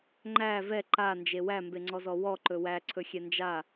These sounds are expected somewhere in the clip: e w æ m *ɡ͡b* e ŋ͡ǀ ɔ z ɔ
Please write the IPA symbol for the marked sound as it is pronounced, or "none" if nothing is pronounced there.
b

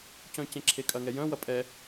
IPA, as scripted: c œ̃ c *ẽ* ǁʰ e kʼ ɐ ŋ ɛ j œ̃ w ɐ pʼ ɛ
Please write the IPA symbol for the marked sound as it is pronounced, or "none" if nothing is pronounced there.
ẽ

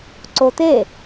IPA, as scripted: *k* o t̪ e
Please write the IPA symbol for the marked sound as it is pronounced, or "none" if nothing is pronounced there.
ǀ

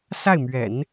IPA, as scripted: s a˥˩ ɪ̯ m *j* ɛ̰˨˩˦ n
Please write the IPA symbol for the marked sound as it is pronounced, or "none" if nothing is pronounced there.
ɥ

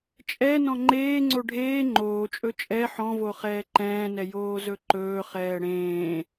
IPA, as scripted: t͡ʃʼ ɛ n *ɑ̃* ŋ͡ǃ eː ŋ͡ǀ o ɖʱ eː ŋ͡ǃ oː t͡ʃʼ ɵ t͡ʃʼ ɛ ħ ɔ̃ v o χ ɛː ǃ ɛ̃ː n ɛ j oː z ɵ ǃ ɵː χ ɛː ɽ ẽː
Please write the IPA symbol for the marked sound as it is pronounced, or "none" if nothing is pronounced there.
ɔ̃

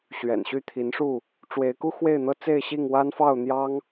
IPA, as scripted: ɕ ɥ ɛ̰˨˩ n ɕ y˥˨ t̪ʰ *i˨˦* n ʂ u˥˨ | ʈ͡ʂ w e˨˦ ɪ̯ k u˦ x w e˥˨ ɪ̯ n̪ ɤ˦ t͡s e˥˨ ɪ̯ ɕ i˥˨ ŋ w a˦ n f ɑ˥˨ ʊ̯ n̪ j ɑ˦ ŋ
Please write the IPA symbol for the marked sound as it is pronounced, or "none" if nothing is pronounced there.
i˨˦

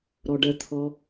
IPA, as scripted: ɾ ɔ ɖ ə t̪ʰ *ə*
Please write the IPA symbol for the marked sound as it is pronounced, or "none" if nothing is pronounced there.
ɔ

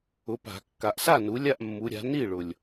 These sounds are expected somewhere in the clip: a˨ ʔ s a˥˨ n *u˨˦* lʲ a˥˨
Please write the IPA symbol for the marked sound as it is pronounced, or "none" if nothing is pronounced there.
u˨˦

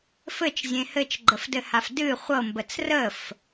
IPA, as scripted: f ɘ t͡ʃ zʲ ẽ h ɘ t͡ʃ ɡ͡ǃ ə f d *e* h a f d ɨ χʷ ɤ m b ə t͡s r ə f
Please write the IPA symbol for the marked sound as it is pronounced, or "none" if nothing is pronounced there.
ɘ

